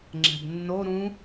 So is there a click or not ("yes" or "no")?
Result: yes